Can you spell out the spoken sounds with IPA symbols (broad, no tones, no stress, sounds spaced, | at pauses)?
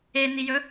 e n i j ɵ